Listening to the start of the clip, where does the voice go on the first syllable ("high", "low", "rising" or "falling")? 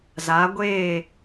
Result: rising